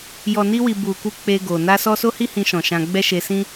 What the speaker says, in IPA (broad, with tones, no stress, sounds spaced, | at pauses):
j ɔ˨ n i˧ w i˨ b u˨ k u˧ k͡p e˧ ɡ o˨ n a˧ s ɔ˧ s o˦ h i˦ h ĩ˧ ʃ ɔ̃˨ ʃ ã˧ ɡ͡b ɛ˦ ʃ e˧ s ĩ˦